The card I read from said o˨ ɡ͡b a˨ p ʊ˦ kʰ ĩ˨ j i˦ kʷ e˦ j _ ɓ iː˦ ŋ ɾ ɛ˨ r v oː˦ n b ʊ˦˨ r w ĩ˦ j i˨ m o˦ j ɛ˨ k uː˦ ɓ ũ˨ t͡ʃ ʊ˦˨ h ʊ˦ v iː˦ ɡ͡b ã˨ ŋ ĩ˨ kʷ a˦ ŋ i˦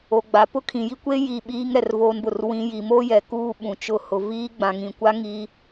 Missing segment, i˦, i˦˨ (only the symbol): i˦˨